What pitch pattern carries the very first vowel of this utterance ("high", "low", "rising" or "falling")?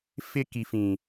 high